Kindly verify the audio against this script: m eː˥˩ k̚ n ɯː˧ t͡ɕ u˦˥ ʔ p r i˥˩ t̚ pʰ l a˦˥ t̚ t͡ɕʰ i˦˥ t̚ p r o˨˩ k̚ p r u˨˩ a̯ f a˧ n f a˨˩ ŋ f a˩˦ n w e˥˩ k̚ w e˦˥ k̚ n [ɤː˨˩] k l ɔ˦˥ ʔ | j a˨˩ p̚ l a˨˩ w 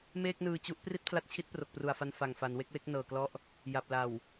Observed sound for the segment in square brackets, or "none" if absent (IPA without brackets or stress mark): ɤː˨˩